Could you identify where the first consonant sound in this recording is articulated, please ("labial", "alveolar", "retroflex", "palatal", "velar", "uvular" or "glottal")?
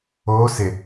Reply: alveolar